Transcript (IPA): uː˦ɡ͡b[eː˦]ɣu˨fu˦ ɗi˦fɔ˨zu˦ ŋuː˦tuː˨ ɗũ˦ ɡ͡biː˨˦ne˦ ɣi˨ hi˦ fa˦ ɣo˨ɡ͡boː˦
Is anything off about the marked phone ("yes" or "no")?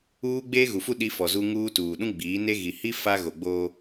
no